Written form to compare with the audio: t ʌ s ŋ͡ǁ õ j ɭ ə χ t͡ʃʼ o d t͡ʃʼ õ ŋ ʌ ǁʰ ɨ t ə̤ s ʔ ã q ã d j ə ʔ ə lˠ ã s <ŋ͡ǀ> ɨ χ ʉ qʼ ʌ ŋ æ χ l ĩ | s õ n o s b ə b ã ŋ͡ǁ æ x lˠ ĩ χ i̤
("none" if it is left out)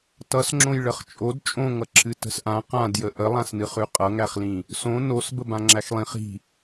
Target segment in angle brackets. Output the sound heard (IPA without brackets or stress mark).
n